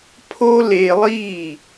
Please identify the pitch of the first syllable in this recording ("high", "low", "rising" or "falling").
high